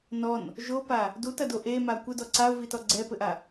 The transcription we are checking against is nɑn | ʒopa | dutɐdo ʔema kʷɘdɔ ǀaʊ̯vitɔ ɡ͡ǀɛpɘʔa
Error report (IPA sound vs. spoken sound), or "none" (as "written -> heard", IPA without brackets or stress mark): ɑ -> ɔ